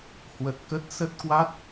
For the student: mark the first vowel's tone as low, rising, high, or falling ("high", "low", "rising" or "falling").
low